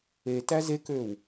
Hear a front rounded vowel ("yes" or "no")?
yes